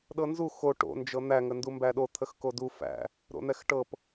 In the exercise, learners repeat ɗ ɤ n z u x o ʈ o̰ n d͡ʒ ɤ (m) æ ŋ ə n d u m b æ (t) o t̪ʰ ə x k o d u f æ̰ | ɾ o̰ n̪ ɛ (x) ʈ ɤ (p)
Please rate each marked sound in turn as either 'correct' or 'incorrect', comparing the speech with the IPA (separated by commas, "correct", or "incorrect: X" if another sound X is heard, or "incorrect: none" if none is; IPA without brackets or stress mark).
incorrect: n̪, incorrect: ɗ, correct, correct